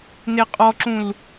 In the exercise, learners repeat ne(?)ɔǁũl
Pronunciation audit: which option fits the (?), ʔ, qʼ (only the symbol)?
qʼ